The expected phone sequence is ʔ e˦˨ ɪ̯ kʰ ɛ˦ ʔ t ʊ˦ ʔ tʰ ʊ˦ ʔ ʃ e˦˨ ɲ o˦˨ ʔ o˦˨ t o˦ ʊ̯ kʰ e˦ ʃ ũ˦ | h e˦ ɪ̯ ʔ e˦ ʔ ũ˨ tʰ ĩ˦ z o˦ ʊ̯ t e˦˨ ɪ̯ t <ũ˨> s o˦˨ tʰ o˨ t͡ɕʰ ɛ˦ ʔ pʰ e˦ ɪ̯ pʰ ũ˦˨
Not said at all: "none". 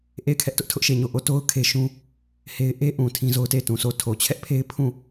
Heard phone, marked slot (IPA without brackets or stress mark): ũ˨